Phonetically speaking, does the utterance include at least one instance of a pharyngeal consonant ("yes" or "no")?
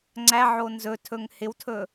yes